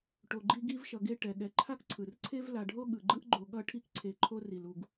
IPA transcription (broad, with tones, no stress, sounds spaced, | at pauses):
ʈ o˨ ɡ͡ǃ i˦ ɡ i˥ v ʃ ʌ˨ ɡ e˥ ʈ ɛ˩ ɠ ɛ˨ ǃʰ a˥ k ǀʰ ɯ˩ r ǀʰ e˥ v l a˨ ɖʱ o˥ ɠ ɯ˩ ɡ͡ǃ ɯ˦ ʔ ɡ͡ǃ o˨ ɠ ʌ˦ ʈʰ i˦ k ǀʰ e˨ ǃʰ o˦ r i˩ l u˨ ɡ